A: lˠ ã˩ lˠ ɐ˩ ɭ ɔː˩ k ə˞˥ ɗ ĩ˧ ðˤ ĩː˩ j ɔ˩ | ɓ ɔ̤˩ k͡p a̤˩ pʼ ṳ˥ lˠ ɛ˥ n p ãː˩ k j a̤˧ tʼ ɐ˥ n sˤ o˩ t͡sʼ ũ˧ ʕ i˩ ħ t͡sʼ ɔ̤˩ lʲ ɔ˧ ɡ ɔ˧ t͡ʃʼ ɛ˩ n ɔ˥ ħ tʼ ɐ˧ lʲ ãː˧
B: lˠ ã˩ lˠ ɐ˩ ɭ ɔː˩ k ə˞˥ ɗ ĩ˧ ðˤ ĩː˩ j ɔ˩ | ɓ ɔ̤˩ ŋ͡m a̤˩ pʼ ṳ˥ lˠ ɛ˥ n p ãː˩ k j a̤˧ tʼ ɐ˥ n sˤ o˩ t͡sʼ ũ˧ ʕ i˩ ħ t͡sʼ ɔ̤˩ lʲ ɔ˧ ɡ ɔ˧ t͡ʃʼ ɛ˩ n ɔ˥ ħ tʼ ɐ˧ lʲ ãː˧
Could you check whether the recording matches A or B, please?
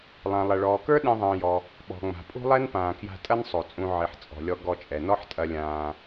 B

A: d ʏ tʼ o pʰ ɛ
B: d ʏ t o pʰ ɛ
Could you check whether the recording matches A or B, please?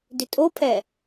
A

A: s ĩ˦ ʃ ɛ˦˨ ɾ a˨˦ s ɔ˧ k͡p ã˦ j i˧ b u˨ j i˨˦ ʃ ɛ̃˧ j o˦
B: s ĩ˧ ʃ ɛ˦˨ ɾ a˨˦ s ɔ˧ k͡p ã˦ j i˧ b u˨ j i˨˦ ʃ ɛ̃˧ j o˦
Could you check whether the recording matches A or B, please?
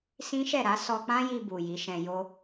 A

